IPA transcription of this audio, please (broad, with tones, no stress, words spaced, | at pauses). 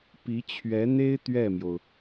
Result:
pi˧˥t͡ɕʰɥɛ˧˥n̪e˥ɪ̯ t̪ɥɛ˥˩mjo˩ʊ̯